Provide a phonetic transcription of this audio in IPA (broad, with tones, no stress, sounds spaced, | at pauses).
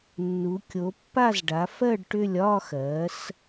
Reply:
nː u˨˦ kʲ o˨˦ pː a˥˧ z ɖ a˨˦ f ɜ˥˧ ɖ ʈ ʏ˥˧ lʲ ɒ˥˧ x ɜ˨˦ s